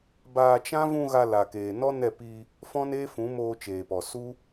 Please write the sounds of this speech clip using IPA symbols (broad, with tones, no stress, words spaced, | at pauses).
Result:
baː˧t͡ʃã˦ vũ˧ ɣa˧la˨keː˨ nɔ˦nɛ˦˨ pi˧ | fɔ̃˦neː˦fũ˨˦ moː˧t͡ʃeː˨pɔ˨su˦